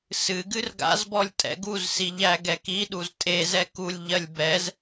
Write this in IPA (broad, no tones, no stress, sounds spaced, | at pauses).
s ɨ ɡ ɨ r ɡ a̰ z b ɔ lʲ tʼ ɛ̰ ɡ u z s i ʎ æ ɡ ɛ k i ɗ u z tʼ e z ɛ k u lʲ ʎ ɜ lʲ b ɛ z